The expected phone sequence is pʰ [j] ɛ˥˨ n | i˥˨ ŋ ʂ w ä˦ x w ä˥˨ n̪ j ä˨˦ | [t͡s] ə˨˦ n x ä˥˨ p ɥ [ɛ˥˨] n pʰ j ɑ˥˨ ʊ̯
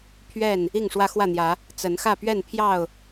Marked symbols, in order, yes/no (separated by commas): no, yes, yes